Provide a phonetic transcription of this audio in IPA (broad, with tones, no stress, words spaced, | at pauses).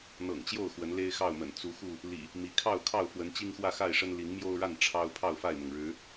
n̪ɤ̰˨˩ŋt͡ɕjo˥˨ʊ̯ xwə˨˦nle˦ɪ̯xɑ˥˨ʊ̯mə̰˨˩n t͡su˨˦xu˥˨ | lḭ˨˩ | mi˨˦ kʰɑ˥˨ʊ̯kʰɑ˥˨ʊ̯fwə˨˦n t͡ɕi˦ŋxwä˥˨xa˥˨ɪ̯ʂə˦n li˨˦ŋmjo˦ʊ̯ɻa˥˨n ʈ͡ʂʰɑ˦ʊ̯ pʰɑ˥˨ʊ̯fa˥˨ɪ̯mʊ˩ŋ ɻɻ̩˨˦